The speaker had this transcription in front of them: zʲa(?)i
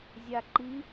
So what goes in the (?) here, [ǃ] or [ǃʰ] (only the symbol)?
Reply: ǃ